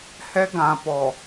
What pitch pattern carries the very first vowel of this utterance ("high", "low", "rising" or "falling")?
high